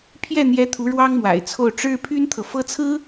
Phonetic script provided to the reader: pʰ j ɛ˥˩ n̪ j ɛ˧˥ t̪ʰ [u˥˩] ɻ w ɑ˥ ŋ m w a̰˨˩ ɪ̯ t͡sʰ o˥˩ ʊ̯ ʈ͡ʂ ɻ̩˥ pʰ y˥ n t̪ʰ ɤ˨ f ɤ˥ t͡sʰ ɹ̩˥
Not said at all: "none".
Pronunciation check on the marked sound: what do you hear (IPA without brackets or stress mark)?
u˧˥